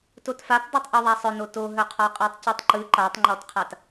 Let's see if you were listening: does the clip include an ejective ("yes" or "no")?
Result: yes